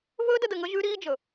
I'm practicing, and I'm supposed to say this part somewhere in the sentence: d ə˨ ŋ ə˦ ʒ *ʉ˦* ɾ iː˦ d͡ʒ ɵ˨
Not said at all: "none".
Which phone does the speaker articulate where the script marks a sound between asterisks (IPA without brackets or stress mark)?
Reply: ʉ˦